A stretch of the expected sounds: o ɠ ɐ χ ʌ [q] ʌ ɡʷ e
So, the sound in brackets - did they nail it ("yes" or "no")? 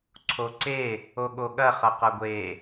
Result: yes